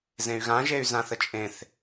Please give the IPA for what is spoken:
z ẽ y̯ ɣ ã ʒ e y̯ z ã θ ə t͡ʃʼ ẽ θ

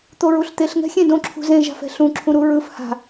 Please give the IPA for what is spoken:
t̪ o ɹ u ɬ t̪ e ɬ ŋ ɛ̤ xʲ ẽ d õ ǁʰ ṳ z ẽ ʒ a̤ f ɛ̤ ɬ ũ ǁʰ ũ ɾ u ɹ ɯ f h a̤

